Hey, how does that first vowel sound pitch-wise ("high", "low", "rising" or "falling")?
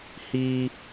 high